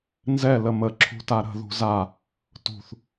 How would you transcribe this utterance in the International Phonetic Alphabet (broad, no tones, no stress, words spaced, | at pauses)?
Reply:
nzɛ ləmə ǁʰṳtaɾə̤ ðṳza | tṳθ